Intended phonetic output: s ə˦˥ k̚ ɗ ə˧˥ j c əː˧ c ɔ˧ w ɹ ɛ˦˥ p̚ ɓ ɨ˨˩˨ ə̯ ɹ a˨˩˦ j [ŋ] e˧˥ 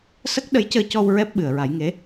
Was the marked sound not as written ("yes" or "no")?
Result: no